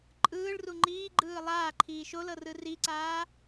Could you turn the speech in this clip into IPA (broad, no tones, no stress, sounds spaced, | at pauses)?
ǃʼ ɯː ɭ r u ŋ͡ǃ iː ɡ͡ǃ ɯː lˠ aː ǃʰ iː ʃ o l ɤ r ɯ r i ǀ aː